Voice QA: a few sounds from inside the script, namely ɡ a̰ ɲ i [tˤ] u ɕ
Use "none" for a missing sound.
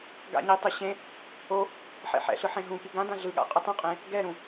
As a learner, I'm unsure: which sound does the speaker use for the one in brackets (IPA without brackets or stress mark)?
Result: tˤ